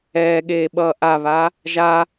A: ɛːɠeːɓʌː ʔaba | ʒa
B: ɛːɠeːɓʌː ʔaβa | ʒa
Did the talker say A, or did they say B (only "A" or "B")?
B